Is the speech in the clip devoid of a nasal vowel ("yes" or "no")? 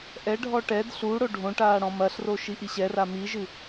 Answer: no